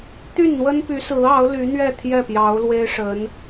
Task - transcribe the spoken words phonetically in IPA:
t̪y˥˩nn̪wə˥npy˧˥ sɹ̩˧˥ɑ˧˥ʊ̯ ly˧˥n̪ɥɛ˥˧ t̪ʰjɛ˥˩pjɑ˧˥ʊ̯ lwe˥ɪ̯ʂə˧˥n

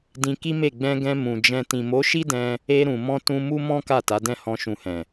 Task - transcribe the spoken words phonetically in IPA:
dĩ˧ki˦me˦˨ ɡ͡bɛ̃˧ɡɛ̃˧ mũ˨d͡ʒɛ̃˧ tĩ˨mo˨˦ʃi˦dɛ̃˧ | e˧ɾũ˨mɔ̃˧ tũ˧mu˦mɔ̃˦ ka˦˨ta˨˦dɛ̃˦˨hɔ̃˧ ʃũ˨hɛ̃˨

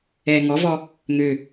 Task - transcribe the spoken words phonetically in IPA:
ɛːŋɔvɔ | ŋø

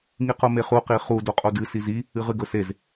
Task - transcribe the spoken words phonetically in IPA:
ŋiqomeχu qiχu doqʼodɨ sizi | ɨʁɨɡɵsez

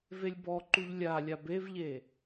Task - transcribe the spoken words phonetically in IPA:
velʲbɔǃuʎ lʲalʲab evʎe

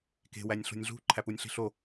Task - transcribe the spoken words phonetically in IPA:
ke̤ wænʲɬṳnʲɮṳ ǃʰæpunʲɬe̤ɬo

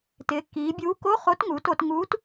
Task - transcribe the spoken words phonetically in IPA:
tɪː˩˧kːiː˩˧ bʲuː˨˥ko˧˥˧ χo˨˥tŋuː˩˧to˩˧t ŋuː˨˥t

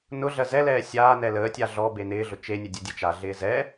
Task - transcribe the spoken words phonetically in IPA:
nʊɮɜ zɛlɛː sʲaːnɛ ləːtʲa ɮɔ benɪːɮʊ t͡ʃenʲə dʲɘdʲɘt͡ʃaɮɪː zɛ

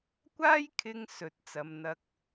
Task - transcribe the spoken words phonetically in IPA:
kʷaː˥jkʰɪ˧ŋ sɵ˨t̚ t͡sɐ˨˧mn̪ɐ˧k̚

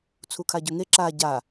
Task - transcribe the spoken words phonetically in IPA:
t͡sʰukʰaɟɵŋe ǁa ɟa

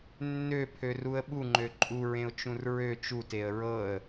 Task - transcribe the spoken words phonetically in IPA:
nːøpʰøruə̯ ɓuŋ͡ǃø ǃʼuɹẽʊ̯t͡ʃũr ɹø t͡ʃu teə̯ɹɤə̯

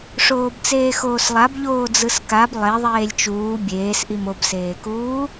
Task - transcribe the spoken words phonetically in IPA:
ʂoːbt͡seːxoːslˠab ʎoːd͡zɯskab lˠe ðˤeːlʲt͡ʃuː bʲeːsʔim obseːkuː

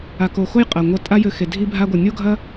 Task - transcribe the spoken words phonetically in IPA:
a˨ko˨ xo˦jqʼɐ˨ŋʷɐ˧ tʼa˦jɘ˧ xe˨dʱi˧bʱa˧ɡʷɘ˨ nʲo˦ɡʱɐ˦

